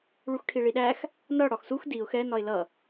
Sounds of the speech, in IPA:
ɭuxʈʰiɭiɗæx | nʌ ɽɒxsux diʊ̯ xɛ nɒɪ̯lʌ

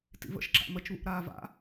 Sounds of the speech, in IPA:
tḭvə̰ʃ ǁa̰mət͡ʃβṵʔ ɾaːva̰

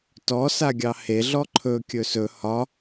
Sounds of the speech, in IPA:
tɔ saɡʲɑhe ɮɔǃʰɵ kʲɵsɵ hɒ

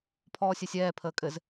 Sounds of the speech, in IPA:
pʰɔːsʲɛsʲɛː pʰəːkʼɘz

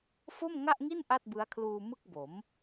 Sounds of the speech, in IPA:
fo˥˩mŋa˥˩ʔŋi˥˩n ʔa˥˩t̚bɯ˦˥a̯kʰluː˧ mɯ˥˩k̚bo˩˦m

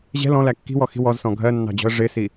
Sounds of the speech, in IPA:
ʑɛ̤ lɔ̃læ kːi̤wɔxi̤ wɔzsɔ̃ ɡʱɜnːɑ̤d͡ʑɔ̤ə̯ ʐɪsi

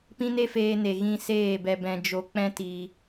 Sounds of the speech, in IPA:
pĩ˦ne˦feː˧ne˨ ɣĩ˧ seː˦˨bɛ˧ bɛ̃˧d͡ʒo˧ k͡pɛ̃˦tiː˧

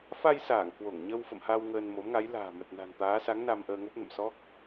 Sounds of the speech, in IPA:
fa˧jsaː˧˩ŋ kwo˧˩ŋɲə˧w fə̰˧˨mha˧w ŋəː˧nmo˨˦mŋa˨˦j la̤ː˨˩mə˨˩t̚ na̤˨˩nt̪aː˨˦sa˨˦ŋ na˧mʔəː˧ŋo˦˥p̚nə̰˧˨m sɔ˦˥k̚

